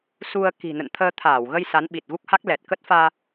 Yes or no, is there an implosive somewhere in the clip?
yes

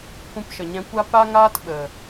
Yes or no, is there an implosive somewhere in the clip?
yes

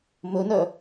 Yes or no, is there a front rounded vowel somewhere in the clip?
yes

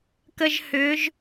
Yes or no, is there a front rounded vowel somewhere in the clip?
yes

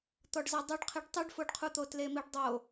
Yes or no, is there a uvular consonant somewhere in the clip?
yes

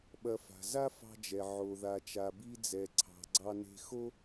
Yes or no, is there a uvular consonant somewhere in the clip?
no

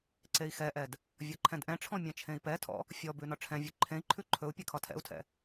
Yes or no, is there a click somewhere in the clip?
yes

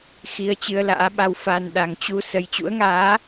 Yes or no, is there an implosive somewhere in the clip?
yes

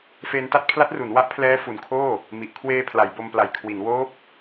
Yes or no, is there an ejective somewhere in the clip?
no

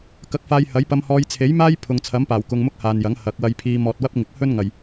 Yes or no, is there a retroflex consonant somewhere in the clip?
no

